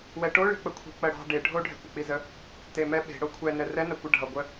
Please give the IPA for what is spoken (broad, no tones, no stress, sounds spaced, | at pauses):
w ɛ ʈ o ɭ i̤ k͡p ə kʷʰ i̤ k͡p ɜ ɽ ɑ̤ ɖ e ɖʱ o ɖʱ ɛ̤ kʷ ʌ k͡p i z ə | t e m ɛ ɓ e̤ ɽ o kʷʰ ɛ n ɛ r ɛ n ɜ kʷ ə ɖʱ ʌ ɡʷ ə